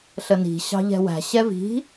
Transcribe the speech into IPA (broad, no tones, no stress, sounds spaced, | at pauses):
ɬ ə n i̤ ɕ ɑ̤ ʎ ɛ̤ w æ̤ ɕ ɛ v i̤